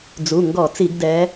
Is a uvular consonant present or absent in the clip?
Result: absent